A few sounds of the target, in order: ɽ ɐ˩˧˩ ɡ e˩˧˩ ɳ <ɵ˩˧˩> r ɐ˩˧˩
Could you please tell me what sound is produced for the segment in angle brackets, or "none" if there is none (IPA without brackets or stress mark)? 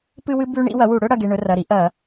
ɵ˦